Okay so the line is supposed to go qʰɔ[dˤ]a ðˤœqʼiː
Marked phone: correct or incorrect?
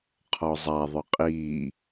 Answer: incorrect